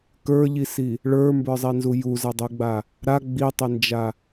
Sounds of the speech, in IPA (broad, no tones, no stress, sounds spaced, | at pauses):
k ə˞ ʎ i s i | ɭ ə˞ m b ə˞ zˤ i n z u j u z a dˤ u ɡ͡b a | ɾ a ɡ͡b i tˤ e n d͡ʒ a